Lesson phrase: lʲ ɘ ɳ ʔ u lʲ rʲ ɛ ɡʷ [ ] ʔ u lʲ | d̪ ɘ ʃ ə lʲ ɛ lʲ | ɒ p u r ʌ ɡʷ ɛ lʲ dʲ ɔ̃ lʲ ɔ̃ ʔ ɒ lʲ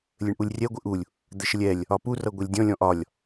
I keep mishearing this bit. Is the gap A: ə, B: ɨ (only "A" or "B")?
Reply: B